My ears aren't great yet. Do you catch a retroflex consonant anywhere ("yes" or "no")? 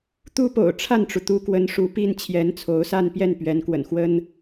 yes